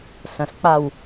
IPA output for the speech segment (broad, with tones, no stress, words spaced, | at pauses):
sɐ̃˨sk͡pa˦˨w